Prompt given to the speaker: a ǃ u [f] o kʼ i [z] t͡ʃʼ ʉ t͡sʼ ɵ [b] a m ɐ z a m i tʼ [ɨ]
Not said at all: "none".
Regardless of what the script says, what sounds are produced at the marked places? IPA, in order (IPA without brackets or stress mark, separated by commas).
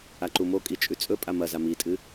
m, none, pʼ, ɨ